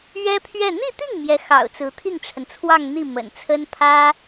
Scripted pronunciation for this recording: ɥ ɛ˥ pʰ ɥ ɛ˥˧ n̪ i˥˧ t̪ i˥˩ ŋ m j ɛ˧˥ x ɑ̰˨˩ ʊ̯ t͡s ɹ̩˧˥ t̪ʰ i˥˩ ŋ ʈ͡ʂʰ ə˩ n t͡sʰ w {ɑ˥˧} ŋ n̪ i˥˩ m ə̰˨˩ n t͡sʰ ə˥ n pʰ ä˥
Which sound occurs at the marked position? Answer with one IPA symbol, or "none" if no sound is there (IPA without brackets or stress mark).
ɑ˥˧